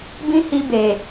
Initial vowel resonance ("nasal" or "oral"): nasal